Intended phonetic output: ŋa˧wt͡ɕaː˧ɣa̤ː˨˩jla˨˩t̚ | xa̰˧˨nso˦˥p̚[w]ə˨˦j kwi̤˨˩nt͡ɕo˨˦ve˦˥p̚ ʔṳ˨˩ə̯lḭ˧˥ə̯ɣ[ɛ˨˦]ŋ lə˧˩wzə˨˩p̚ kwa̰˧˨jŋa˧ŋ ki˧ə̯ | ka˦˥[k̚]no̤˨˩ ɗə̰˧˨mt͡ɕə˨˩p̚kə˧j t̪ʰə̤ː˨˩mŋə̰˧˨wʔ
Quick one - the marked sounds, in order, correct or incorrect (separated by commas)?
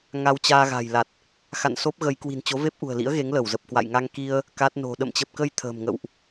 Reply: incorrect, incorrect, incorrect